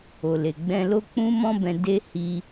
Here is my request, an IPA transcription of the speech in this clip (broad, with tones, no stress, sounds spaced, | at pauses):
o˨ l e˨ ɡ͡b ɛ̃˧ l o˦ k͡p ũ˦ m ɔ̃˦ b ɛ̃˧ d e˦ h i˧